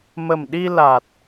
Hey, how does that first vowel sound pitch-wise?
low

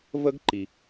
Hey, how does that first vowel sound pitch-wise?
high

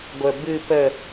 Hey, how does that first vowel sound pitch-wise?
low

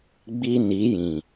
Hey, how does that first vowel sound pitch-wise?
high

